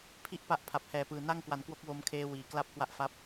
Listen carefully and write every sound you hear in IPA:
pʰ i˥˩ ʔ p a˦˥ ʔ pʰ a˨˩ p̚ h ɛː˨˩ p ɯː˨˩ n a˥˩ ŋ k w a˨˩ n k w o˦˥ k̚ w o˧ m kʰ eː˦˥ w iː˨˩ k l a˦˥ p̚ k w a˦˥ ʔ f a˦˥ p̚

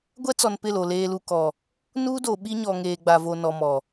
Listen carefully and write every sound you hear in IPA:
ɡʷ ɛ˦ t͡s ɔ˨ n p ɪ˦˨ l o˨ l eː˨ l u˨ k ɔ˨ | n uː˦ d o˨ ɓ i˦ ɲ ɔ˨ ŋ eː˨ ɡ͡b a˨ v o˨ n ɔ˨ m ɔ˨

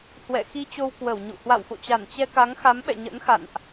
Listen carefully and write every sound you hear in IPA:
h w ɛ̰˧˨ x i˧ t͡ɕ o˧ w k w ə˧˩ w ɲ ṵ˧˨ h w a̰˧˨ w f o̰˧˨ t͡ɕ a˧˩ n t͡ɕ ɛ˧ k a˨˦ ŋ x a˨˦ m ɓ ɛ̰˧˨ ɲ ə̰˧˥ n x a̰˧˨ n ʔ

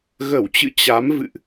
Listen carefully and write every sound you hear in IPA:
ɣ ə˧˩ w t͡ɕ ɨ̰˧˨ t͡ɕ a˨˦ m v ɨ̰˧˨ ʔ

